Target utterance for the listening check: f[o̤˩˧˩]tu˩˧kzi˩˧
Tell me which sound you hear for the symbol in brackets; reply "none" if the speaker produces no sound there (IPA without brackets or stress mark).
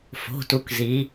o̤˩˧˩